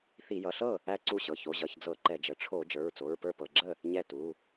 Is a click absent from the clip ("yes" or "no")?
no